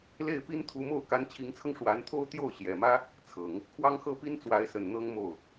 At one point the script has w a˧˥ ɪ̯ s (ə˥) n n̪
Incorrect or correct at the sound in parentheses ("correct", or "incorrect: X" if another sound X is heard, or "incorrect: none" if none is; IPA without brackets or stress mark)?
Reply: incorrect: ə˨˩